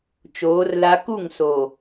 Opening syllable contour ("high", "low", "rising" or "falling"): rising